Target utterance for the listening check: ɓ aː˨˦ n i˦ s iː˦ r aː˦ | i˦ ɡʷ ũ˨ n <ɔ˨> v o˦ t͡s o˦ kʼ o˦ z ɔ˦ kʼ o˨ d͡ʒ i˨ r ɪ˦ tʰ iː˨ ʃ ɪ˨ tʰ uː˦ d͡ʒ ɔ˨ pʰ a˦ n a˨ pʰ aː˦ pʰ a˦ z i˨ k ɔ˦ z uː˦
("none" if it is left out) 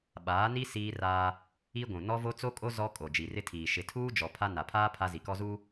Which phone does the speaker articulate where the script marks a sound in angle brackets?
ɔ˦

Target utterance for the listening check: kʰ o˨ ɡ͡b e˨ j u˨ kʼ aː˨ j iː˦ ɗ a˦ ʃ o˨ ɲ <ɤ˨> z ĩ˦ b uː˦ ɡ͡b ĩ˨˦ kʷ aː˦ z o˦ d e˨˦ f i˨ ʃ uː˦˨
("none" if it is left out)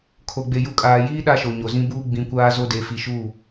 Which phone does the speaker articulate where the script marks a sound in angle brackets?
o˨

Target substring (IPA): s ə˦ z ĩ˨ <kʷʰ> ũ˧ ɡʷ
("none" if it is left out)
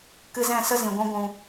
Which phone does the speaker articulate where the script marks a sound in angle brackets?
ɡʷ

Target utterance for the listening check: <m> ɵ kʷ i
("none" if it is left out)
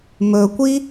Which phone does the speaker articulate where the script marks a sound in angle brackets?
m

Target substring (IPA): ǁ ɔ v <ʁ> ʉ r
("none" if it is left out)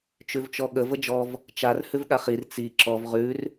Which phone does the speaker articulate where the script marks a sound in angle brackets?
ʁ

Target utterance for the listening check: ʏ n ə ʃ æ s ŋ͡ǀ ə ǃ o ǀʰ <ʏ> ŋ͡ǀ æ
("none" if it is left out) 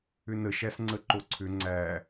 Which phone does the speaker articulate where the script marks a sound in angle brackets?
ʏ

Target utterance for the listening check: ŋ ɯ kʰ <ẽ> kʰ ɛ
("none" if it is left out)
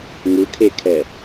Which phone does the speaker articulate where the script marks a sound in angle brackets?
e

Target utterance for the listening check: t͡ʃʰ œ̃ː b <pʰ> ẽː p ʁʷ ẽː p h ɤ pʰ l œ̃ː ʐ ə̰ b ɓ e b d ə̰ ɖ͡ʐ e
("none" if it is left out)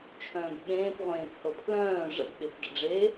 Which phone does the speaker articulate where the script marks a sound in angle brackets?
ɓ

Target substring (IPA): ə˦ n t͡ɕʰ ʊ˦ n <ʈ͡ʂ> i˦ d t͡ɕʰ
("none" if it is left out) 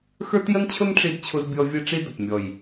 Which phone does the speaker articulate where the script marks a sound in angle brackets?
ʈ͡ʂ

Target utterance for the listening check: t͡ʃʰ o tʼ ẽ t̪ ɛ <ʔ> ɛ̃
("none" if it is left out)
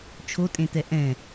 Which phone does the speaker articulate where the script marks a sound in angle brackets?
ʔ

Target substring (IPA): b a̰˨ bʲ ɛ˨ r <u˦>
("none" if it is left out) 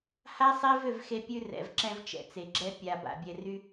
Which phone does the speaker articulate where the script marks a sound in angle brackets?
y˦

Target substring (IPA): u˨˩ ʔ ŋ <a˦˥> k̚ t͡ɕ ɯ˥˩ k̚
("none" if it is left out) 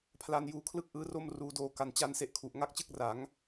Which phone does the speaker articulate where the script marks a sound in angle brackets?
a˦˥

